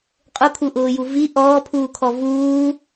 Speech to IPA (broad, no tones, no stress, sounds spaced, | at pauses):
qʼ ʊ kʰ u ʔ ʊː j u v i ʔ ɔː pʰ uː kʰ ɔ v uː